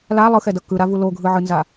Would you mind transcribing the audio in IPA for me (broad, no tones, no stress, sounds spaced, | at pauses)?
l a lˠ ɯ x ɛ d ʌ k ɯ ɾ a v u l o ɡʱ ɯ ʕ ɯ n z a